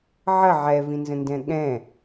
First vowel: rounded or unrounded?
unrounded